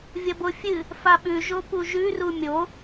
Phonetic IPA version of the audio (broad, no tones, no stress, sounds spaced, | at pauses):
vʲ ɐ b o fʲ ɨ | f a ɓ ʉ ʒ o p u ʒ ʉ r u mʲ o